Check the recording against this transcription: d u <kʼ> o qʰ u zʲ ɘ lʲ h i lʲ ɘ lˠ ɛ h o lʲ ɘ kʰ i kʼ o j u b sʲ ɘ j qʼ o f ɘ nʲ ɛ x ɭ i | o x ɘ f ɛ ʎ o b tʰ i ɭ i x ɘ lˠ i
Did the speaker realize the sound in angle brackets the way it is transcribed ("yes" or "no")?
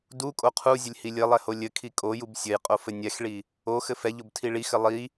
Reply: yes